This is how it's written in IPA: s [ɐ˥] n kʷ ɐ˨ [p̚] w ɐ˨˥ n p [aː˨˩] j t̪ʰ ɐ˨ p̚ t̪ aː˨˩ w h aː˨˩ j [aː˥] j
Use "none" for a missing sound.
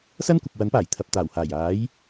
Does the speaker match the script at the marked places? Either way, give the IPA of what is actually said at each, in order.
ɐ˥, p̚, aː˨˩, aː˨˥

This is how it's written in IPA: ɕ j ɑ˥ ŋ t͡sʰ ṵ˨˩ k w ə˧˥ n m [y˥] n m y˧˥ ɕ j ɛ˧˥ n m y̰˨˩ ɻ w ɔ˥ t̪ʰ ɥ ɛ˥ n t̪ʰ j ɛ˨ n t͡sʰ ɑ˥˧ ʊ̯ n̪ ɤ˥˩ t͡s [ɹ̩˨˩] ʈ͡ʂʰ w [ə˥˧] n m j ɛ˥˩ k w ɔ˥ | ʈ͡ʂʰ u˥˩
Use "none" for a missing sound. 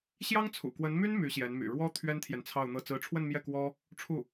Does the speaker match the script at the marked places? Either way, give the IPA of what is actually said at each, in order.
y˥, ɹ̩˧˥, ə˥˧

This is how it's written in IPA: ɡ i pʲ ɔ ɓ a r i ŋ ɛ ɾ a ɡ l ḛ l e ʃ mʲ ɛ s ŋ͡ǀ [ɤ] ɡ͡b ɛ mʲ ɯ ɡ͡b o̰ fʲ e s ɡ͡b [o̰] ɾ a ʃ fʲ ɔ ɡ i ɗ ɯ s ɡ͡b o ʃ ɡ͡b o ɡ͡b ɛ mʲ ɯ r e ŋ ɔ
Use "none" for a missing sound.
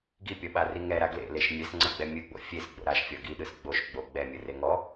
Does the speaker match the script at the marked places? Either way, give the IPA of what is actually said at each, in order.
ɤ, o̰

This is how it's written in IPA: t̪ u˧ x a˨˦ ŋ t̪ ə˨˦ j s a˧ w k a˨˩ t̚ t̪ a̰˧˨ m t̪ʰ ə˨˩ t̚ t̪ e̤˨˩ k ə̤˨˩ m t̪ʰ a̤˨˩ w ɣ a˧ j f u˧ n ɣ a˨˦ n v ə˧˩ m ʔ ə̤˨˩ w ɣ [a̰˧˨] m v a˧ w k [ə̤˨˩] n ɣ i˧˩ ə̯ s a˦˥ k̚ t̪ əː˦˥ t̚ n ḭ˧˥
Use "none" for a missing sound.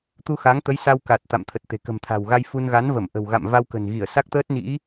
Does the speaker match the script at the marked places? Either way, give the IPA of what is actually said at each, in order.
a̰˧˨, ə̤˨˩

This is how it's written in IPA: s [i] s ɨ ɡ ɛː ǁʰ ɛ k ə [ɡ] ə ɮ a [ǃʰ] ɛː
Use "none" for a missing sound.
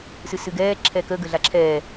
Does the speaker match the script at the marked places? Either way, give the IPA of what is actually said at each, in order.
ɨ, ɡ, ǁʰ

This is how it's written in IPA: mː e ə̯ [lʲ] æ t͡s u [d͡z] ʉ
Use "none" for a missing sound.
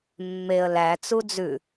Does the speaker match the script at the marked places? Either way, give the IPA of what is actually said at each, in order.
l, d͡z

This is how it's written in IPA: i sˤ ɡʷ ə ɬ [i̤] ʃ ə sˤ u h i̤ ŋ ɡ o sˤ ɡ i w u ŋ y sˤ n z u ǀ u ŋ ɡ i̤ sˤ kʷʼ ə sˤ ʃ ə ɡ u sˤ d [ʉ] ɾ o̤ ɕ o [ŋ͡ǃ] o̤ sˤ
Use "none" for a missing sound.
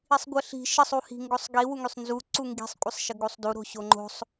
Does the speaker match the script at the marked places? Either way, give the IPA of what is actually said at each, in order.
i̤, u, ŋ͡ǃ

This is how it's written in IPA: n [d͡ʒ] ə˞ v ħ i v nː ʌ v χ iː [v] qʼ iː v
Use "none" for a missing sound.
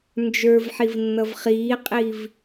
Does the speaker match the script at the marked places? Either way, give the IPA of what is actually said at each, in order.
d͡ʒ, none

